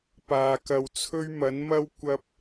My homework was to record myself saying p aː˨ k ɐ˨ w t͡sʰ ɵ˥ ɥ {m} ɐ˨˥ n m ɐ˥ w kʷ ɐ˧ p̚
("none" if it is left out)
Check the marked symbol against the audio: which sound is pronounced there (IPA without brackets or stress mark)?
m